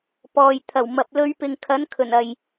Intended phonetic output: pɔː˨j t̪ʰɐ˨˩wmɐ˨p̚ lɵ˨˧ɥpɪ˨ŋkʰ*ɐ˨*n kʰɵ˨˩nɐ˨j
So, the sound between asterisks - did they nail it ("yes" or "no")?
no